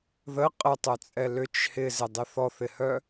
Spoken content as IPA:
ð ə qʼ ə tˤ œ t͡sʼ ɛ l ʏ t͡ʃ h ɪ z ɪ dˤ ɪ θ ɔ θ ɪ h œ

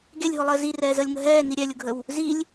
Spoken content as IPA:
ɡ e lʲ ɦ ʊ lˠ əː z i r ɛː z əː lʲ ŋ ə ɦ ɛː n i ɾʲ ɛ lʲ ʊ ɡʱ ə w | z i lʲ

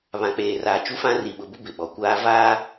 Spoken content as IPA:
β ã˨ k͡p eː˨ r aː˨ t͡ʃ u˦ f ã˦ r i˨ ɓ ʊ˨ b ʊ˦ b ɪ˨ ɓ ɔ˨ kʷ aː˦ v aː˦

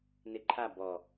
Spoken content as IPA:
n ɪ ǃʰ a b ɔ

